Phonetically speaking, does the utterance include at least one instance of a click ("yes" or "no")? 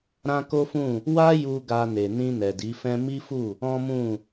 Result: no